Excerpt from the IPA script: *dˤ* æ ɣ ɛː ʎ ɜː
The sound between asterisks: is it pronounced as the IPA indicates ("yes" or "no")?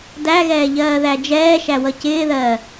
no